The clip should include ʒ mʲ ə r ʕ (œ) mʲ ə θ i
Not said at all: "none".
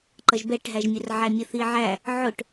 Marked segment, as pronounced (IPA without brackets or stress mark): æ